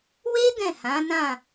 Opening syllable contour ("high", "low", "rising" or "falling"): high